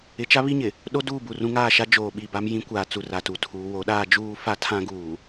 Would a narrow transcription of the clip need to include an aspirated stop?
yes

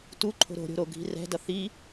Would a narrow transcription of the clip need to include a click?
yes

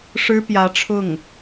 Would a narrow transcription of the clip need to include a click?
no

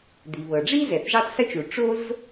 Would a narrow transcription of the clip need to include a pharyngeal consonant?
no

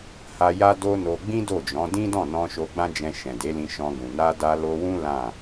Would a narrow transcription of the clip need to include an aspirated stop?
no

